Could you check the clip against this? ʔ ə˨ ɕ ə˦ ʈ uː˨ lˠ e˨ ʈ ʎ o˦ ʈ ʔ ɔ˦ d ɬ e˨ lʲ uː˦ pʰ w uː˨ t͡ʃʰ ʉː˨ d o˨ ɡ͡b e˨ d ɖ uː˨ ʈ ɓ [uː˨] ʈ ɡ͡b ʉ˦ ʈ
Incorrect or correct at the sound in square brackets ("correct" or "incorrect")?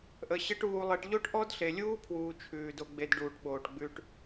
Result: incorrect